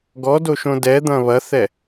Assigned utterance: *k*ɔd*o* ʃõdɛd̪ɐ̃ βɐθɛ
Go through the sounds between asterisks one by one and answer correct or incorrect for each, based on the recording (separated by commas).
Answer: incorrect, correct